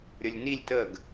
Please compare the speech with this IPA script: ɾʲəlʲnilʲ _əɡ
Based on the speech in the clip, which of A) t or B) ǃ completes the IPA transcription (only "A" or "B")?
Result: A